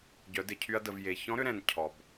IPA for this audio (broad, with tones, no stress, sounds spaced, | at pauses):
ɟ œ˩˧ d ɪ˩ cʰ y˧ ɐ̯ d ə˩ v j e˩ ç ɔ̃˧˥ ɾ ʏ˧ ɾ ɛ̃˩ n cʰ ɔ˩ b